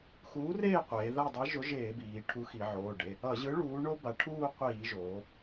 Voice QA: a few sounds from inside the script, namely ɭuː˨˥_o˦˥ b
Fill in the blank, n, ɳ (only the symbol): ɳ